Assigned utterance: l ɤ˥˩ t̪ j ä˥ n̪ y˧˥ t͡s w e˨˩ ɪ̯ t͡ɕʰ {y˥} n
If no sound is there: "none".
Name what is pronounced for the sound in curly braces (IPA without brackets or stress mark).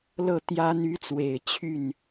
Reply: y˥˩